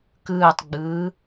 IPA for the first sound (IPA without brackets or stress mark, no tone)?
k